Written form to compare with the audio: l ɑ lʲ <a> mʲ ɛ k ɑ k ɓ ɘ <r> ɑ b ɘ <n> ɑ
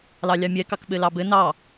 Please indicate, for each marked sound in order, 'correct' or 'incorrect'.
incorrect: ɑ, incorrect: l, correct

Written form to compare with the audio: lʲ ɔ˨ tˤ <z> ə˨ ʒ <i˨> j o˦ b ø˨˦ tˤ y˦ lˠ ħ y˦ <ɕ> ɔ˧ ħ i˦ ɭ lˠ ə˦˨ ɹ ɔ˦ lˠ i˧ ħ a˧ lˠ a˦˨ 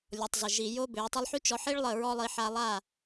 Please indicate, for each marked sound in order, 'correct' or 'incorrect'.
correct, correct, incorrect: t͡ʃ

